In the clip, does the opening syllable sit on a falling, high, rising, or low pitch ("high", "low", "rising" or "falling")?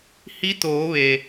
rising